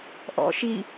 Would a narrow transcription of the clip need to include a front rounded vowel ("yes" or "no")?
no